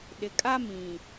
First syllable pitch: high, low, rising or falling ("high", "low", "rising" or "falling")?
low